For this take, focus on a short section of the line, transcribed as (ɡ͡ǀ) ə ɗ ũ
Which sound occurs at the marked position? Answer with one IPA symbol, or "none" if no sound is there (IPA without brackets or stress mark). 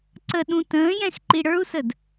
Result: ǀ